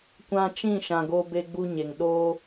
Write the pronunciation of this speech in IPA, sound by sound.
kʷã˧t͡ʃĩ˦˨ʃã˨ ɡo˧be˧ɡ͡bu˧ɲe˨ŋ ɗo˦

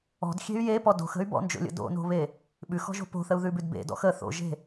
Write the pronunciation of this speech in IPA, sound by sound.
ɔ̤dxʲe̤y̯ jepɔ do̤xə̤y̯ bɔ̰nd͡ʒo̰lʲə̰ do̰no̤βe | ɓʉxɔ̤ʒo̤ po̤θəu̯ðʉbʉd bḛdɔ̰x ə θo̰ʒe̤

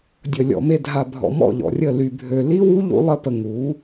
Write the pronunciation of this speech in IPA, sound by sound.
dʲə˨lʲɔ̰˨me˧ dʱa˨bʱɔ̰˨ mɔ̰˦˨ʎɔ̰˨rʲə˦˨ ly˧bʱø˧ li˦wu˦ ʎṵ˦lˠə˦pə˧ ŋu˨˦

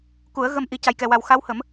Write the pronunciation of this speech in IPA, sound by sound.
ku˨˩˦ə̯ɣə˧m ʔi˧ ca˨˩jkɛ˨˩wa˨˩w xa˧˥whə˨˩˦m

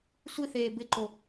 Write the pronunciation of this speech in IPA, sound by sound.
sʷiθeː bɪǃo

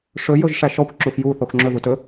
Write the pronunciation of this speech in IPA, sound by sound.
ʂɵ jɵʒʂæʃɔkʷ ǁuxju θoxŋ͡ǁɵ ðutɵ

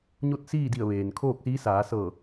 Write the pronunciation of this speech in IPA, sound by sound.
ɲo˥˨t̚siː˥˨di˧˩ə̯ ʋeː˩nkʰoː˥˨k̚siː˧˥ saː˩˧sɤː˧˩

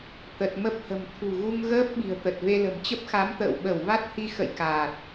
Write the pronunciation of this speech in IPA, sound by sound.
t̪ə˨˩t̚mə˦˥p̚hə̤˨˩m t̪ʰṳ˨˩ɣu˧ŋɣəː˦˥p̚ ɓi̤˨˩ə̯t̪ə˨˩t̚ve˧lə̤˨˩m t͡ɕə˦˥p̚xa˨˦mt̪ə̰ː˧˨w ɓə˧˩wva˦˥t̚hi˧ xə̰˧˨j kaː˨˩t̚

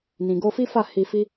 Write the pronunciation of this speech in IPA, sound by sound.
nĩ˨ɡo˧fi˦fa˦˨ hi˧ fi˦

